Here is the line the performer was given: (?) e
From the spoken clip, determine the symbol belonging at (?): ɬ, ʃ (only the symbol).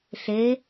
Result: ɬ